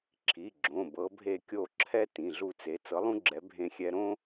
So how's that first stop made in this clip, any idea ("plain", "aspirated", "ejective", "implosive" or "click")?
click